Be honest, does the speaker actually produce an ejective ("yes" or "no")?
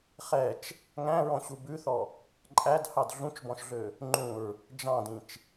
yes